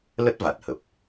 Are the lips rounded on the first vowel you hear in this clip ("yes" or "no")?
no